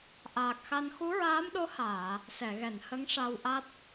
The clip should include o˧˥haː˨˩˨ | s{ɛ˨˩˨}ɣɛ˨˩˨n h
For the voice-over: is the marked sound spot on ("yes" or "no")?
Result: yes